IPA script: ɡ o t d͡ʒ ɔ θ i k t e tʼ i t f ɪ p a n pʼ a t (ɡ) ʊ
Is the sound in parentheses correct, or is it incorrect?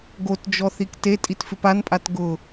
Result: correct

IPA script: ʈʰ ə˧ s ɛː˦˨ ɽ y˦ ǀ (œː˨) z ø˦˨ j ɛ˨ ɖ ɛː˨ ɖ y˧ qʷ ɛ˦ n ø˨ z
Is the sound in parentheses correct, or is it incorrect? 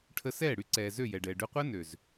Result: incorrect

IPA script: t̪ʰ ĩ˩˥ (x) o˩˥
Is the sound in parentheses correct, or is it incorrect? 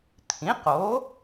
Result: incorrect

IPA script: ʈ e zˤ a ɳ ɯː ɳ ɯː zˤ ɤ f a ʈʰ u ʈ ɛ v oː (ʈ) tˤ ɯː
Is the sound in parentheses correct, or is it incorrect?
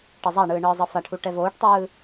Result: correct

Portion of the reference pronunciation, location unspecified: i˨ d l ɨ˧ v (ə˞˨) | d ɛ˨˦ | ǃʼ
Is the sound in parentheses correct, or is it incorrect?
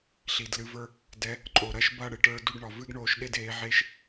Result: incorrect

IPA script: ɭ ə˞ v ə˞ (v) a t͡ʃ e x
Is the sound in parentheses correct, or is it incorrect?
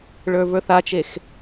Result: incorrect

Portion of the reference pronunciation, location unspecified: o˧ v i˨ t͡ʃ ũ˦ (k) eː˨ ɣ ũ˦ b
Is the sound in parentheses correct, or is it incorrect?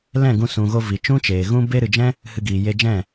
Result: incorrect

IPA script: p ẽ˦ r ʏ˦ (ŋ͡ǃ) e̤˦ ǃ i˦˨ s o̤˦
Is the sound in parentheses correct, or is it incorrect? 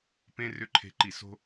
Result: incorrect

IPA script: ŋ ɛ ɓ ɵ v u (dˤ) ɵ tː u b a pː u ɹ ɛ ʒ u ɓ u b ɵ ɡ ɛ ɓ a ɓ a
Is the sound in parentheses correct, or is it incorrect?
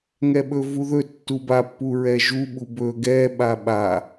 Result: incorrect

